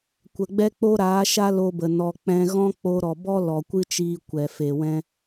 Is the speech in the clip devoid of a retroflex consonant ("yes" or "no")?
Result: yes